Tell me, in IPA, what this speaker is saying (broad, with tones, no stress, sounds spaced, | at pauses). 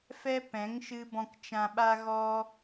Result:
f ɛ˦ p ɛ̃˨˦ ŋ ʃ ɨ˧ b ɔ̃˧ k t͡ʃ ã˧ ɓ a˦ ɣ ɔ˦